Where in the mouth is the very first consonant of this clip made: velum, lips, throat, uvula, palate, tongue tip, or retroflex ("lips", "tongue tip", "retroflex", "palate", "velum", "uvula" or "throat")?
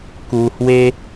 velum